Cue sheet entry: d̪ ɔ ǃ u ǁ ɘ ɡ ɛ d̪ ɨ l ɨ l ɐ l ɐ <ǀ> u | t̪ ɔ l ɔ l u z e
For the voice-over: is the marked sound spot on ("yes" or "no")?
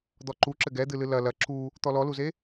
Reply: no